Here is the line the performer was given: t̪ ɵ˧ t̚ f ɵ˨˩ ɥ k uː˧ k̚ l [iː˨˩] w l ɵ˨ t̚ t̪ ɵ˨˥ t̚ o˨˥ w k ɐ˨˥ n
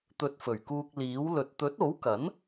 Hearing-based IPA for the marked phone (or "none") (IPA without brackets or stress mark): iː˨˥